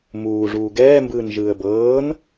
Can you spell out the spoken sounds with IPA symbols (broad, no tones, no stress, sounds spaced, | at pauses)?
m uː ʐ uː ɡ ɛː m b ɯː n ʒ ɯː ə̯ b ɤː n